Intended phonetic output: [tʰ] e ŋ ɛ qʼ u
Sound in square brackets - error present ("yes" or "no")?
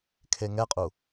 yes